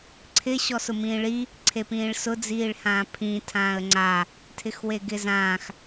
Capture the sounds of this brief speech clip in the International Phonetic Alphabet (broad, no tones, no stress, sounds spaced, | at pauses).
ǀʰ ɪ ɕ ɔ s ʊ m ĩː ɭ i | ǀʰ e p ĩː ɭ s ʊ d͡z iː ɭ h ãː pʰ ĩː tʰ ãː ə̯ ŋ͡ǀ a | tʰ ɪ x w e ɡ ɪ z ãː x